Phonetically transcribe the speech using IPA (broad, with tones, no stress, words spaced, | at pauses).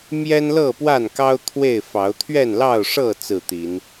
mjɛ˦nlɤ˥˨pwa˥˨nkɑ˦ʊ̯ t̪ʰwe˥˨ɪ̯fɑ˨˦ʊ̯ t̪ʰɥɛ˥˨nlɑ˥˨ʊ̯ʂɤ˥˨ t͡sɹ̩˥˨t̪i˨˦n